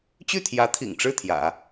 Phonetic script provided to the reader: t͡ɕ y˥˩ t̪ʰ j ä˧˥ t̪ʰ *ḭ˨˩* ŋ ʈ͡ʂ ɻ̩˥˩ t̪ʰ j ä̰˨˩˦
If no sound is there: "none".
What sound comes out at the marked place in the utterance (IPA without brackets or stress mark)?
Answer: ḭ˨˩